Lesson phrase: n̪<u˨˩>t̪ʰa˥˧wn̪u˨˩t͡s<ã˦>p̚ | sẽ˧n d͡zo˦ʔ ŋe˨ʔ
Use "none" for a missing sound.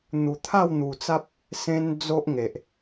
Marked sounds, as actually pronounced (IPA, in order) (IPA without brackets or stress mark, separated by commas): u˨˩, a˦